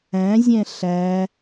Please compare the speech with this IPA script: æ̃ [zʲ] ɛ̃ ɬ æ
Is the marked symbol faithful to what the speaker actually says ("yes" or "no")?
yes